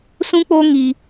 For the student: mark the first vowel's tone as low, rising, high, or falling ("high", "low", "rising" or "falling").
high